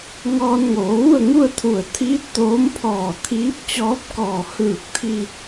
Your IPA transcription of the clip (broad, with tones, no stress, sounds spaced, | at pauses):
ŋ ɔː˧ n ŋ oː˩˧ ʋ u˥˨ ə̯ ŋ u˥˨ ə̯ t̪ʰ u˧˩ ə̯ t̪ʰ iː˧˥ t̚ t̪ oː˧˥ m pʰ ɔː˧˩ t̪ʰ iː˧˥ p̚ t͡ɕ ɔː˧˥ p̚ k ɔː˧˩ h ɯː˧˩ k̚ t̪ʰ i˧